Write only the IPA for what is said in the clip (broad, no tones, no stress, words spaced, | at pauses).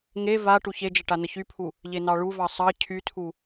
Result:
ŋe va ʈuçed͡ʒə ʈanəçypʰu | ʎenɑɭuvɑ sˤɑ cʰytʰu